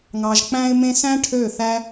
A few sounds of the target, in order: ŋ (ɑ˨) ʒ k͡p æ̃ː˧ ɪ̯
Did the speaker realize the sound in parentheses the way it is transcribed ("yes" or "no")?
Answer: yes